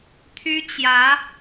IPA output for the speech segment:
t̪ʰ y˥ t͡ɕ j ä˧˥

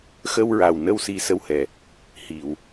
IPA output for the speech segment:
x ə˧ w ɹ a˨˩ w n ə˧ w s i˧ s ə˧ w h ɛ˨˩ | h i˨˩˨ w

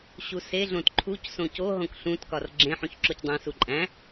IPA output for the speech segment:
ɕ u s e ɮ õ t ǃʰ u c s õ c o ɦ õ k ɬ ũ t k ɒ r ɡ͡ǁ ẽ ħ ũ ç ǁ o c dˤ æ̃ s u ǃʼ æ̃

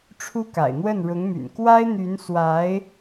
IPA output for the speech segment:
ʈ͡ʂʰ u˥ k a̰˨˩ ɪ̯ n̪ w ə˥˩ n ɻ ʊ˧˥ ŋ m y̰˨˩ n k w a˥ ɪ̯ n̪ y˧˥ n s w a˧˥ ɪ̯

